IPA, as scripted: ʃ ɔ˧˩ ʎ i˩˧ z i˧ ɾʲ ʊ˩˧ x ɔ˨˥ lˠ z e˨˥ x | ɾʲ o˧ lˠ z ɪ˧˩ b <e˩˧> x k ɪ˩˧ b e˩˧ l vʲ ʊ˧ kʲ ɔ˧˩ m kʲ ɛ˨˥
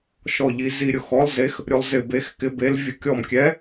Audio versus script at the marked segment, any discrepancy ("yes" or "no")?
no